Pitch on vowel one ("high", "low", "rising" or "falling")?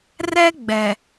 high